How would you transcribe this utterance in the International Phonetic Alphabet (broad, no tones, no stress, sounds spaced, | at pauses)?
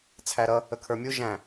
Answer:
t͡sʰ æ ɾ ʌ | ə kʰ ə˞ mʲ u ʒ æ̃